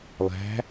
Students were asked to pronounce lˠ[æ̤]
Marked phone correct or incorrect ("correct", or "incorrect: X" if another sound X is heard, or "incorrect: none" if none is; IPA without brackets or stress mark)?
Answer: correct